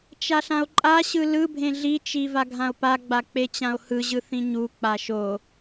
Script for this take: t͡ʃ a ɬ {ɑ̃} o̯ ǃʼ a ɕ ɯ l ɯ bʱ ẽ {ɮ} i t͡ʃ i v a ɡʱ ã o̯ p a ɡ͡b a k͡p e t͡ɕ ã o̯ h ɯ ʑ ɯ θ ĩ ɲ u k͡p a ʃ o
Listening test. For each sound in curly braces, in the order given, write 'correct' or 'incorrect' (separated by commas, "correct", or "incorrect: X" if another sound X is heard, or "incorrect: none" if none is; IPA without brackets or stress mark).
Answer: incorrect: ã, correct